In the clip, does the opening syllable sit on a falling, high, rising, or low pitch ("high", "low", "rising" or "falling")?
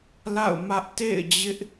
falling